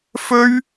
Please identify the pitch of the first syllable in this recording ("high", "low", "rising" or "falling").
high